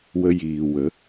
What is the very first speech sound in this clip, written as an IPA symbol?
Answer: w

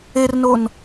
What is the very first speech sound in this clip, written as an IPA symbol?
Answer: e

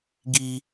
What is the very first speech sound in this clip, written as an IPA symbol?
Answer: ɡ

